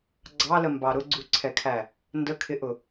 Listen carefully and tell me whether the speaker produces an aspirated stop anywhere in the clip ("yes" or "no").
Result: yes